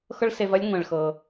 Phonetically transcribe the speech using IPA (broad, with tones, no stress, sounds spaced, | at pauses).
x ɤ˥ ɭ s e˧ v ɐ˥ lʲ ŋʷ ɛ̃˩ ɭ x ɤ˩